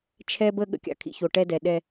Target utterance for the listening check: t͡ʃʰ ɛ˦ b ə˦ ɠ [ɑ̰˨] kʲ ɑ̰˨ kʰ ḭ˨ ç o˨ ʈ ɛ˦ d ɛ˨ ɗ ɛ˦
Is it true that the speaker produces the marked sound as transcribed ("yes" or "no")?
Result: no